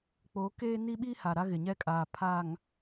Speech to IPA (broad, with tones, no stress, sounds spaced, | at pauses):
k͡p o˨˦ k eː˦ n i˦ ɓ i˦ h a˨ ɾ a˦ ɣ ɪ˨ ɲ ɛ˦ kʼ aː˨ pʰ a˨ ŋ